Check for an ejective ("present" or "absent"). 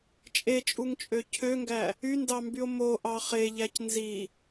present